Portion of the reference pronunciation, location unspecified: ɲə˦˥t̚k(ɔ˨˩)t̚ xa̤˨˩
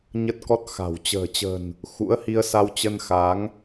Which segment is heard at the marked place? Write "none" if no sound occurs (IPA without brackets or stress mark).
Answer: ɔ˦˥